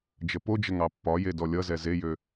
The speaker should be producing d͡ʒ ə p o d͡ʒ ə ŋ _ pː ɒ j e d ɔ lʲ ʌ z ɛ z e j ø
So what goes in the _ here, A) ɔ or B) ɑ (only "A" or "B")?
B